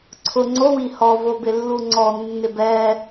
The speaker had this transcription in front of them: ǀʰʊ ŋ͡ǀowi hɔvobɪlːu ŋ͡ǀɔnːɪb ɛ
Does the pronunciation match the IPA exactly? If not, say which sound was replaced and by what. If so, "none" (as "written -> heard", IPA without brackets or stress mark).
none